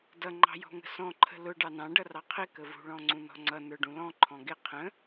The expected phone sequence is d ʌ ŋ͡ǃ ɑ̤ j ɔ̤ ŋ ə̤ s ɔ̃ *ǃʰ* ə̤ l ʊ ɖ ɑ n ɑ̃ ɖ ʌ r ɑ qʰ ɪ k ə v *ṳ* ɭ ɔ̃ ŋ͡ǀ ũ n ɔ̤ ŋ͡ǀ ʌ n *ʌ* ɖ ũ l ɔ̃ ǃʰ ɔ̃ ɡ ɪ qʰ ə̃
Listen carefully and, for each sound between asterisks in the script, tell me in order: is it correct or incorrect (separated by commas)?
correct, correct, incorrect